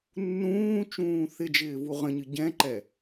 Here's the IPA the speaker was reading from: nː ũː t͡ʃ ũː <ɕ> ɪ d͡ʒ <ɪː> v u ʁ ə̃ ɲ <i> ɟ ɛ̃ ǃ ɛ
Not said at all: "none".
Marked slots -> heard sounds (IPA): θ, ɪː, ɨ

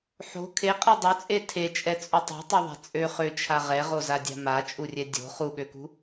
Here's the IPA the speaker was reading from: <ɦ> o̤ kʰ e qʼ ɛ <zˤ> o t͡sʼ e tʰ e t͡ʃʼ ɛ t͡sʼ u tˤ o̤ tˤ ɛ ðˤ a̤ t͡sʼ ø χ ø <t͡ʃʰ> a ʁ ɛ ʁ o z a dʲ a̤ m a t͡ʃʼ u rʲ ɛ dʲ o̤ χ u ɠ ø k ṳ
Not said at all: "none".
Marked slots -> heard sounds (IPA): ħ, dˤ, t͡ʃʰ

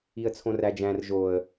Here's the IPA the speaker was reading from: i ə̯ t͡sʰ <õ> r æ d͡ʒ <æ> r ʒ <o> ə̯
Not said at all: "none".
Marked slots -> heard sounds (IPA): õ, æ̃, o

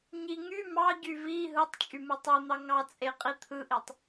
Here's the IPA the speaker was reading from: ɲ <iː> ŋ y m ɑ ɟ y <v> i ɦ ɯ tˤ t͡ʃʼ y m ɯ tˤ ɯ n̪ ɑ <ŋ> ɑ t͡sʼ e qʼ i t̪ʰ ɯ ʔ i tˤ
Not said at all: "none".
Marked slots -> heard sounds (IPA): i, v, ŋ

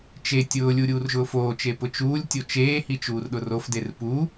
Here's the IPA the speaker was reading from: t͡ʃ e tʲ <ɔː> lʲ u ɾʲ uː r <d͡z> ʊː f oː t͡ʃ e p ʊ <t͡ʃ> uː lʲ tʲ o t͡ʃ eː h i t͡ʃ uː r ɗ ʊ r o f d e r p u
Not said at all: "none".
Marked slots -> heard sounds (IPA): ʊː, ʒ, t͡ʃ

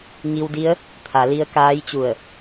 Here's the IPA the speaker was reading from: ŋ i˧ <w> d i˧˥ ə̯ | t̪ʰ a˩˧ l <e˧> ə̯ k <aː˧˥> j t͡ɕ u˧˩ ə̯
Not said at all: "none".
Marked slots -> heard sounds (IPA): w, i˧, aː˧˥

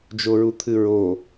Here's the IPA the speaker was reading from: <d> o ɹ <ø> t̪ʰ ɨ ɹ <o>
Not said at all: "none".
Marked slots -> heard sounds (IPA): d͡ʒ, u, o

